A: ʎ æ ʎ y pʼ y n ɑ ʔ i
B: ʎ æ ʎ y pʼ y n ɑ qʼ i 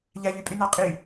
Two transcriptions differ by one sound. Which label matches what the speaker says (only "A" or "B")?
B